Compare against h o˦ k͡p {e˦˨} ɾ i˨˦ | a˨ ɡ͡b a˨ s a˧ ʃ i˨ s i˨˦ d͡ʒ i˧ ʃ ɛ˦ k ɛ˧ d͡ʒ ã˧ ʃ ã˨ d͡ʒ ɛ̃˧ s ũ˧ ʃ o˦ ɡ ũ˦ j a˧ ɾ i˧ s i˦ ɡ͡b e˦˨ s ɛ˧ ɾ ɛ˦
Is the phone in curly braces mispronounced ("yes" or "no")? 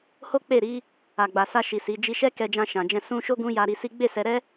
no